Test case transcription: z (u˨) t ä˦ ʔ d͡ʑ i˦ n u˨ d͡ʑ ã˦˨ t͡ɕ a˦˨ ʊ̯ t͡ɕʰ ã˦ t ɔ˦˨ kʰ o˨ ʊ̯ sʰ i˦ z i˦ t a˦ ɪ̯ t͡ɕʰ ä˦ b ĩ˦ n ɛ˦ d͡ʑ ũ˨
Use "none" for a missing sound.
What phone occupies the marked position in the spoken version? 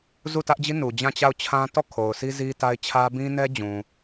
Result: u˦˨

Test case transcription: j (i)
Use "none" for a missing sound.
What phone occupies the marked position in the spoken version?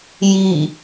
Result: i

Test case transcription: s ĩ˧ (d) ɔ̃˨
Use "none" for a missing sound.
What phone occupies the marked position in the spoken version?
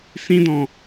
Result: d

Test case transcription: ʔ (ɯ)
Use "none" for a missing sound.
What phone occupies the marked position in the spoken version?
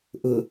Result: ʊ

